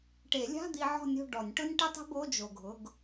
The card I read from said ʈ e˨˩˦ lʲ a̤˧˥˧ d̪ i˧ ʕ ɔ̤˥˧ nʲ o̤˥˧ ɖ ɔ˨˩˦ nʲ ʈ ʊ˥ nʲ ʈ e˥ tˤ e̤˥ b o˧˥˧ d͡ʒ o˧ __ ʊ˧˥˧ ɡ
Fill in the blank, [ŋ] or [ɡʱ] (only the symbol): ɡʱ